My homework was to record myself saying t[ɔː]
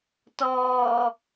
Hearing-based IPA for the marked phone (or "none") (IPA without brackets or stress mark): ɔː